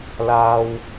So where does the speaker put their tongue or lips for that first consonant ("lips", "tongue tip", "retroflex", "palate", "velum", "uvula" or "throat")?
tongue tip